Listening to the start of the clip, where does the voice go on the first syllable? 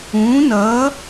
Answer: rising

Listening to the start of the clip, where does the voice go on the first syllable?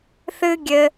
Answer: high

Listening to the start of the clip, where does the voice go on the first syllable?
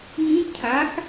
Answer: rising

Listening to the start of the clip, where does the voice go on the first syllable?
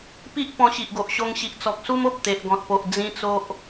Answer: high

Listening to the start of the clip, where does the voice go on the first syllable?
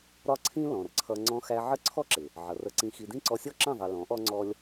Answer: high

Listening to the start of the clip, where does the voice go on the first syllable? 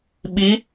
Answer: rising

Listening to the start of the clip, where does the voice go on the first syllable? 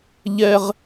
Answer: high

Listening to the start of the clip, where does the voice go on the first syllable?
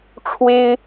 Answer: high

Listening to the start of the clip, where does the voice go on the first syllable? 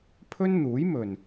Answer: high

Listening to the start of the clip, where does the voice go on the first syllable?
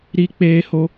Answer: high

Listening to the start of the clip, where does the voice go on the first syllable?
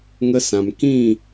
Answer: high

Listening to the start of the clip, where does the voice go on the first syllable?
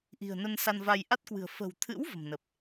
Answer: low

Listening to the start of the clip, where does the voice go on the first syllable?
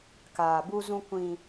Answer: low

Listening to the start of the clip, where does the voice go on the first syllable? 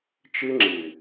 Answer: high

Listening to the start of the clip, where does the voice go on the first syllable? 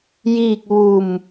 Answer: falling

